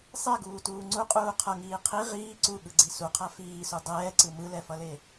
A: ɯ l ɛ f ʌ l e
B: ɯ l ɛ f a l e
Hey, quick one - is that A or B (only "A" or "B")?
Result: A